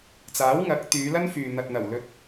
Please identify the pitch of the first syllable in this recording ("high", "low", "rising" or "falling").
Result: rising